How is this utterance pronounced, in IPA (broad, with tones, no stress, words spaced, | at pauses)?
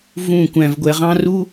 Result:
vũ˥˩ kʷæ̃˧vɡʷɛ˧ʁɑ̃˥ ru˥